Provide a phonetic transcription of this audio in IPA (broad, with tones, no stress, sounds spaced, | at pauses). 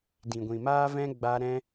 d ĩ˨ ɡʷ ĩ˨ m aː˦ v ɛ̃˦ ɡ͡b a˦ ɾ ɛ̃˦